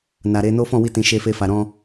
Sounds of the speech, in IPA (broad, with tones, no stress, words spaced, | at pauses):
na˨ɾe˧no˦ fɔ̃˦˨wi˧tĩ˨ ʃe˧fe˧fa˨ ɾɔ̃˧